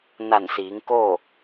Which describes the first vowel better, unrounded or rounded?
unrounded